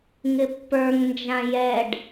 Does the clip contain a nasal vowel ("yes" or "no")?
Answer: yes